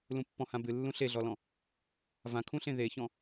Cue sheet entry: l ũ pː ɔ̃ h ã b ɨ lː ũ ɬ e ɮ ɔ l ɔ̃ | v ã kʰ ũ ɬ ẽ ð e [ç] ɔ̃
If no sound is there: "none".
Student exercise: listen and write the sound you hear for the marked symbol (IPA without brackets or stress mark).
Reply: ç